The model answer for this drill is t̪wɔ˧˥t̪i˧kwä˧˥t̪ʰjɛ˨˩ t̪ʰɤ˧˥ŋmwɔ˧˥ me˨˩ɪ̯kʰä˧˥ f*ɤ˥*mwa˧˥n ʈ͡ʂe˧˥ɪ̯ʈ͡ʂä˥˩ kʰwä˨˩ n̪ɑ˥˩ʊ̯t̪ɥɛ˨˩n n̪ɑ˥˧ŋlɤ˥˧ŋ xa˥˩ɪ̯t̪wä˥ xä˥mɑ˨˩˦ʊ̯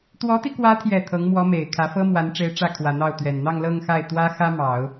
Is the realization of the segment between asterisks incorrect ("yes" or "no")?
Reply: no